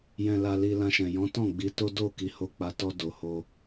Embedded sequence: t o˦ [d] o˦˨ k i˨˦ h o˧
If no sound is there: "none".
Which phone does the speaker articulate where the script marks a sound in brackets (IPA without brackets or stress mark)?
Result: d